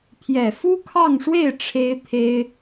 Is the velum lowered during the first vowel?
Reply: no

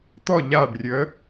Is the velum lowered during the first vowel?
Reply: no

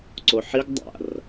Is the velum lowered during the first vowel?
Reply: no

